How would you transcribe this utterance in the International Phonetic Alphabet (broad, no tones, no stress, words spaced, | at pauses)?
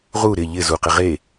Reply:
ʁu ɾɪ ʎɪ zuqɪ ʁe